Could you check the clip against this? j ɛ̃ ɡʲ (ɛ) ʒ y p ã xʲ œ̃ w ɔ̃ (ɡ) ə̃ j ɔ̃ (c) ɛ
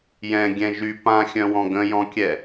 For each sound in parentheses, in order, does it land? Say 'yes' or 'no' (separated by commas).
no, yes, no